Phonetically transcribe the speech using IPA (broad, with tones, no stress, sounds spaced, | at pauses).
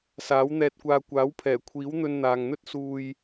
s aː˨˥ w n̪ ɛː˧ t̚ kʷ aː˧ kʷ aː˨˥ w pʰ ɛː˨˩ kʷʰ iː˨˥ w n̪ ɵ˧ n n̪ aː˨ ŋ n̪ ɵ˥ t̚ s uː˧ j